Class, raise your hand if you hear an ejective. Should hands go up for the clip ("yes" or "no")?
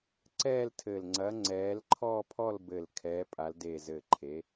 yes